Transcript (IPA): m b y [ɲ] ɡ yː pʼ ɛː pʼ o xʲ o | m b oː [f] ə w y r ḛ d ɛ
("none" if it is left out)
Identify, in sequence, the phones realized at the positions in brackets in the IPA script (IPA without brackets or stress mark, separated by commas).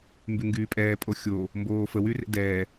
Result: ŋ, f